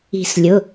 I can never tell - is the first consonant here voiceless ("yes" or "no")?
yes